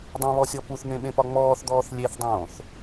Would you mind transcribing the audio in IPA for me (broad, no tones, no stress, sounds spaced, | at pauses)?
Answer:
dˤ ẽ β ɔ sʲ ɔ p u θ n̪ ẽ ɓ ẽ p ɒ ŋ͡m ɔː θ d̪ ɔː θ lʲ e θ dˤ õː θ